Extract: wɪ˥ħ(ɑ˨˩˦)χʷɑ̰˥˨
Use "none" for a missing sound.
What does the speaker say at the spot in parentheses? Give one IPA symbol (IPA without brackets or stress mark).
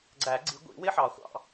ɑ˨˩˦